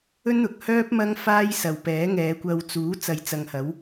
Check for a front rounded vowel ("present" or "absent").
present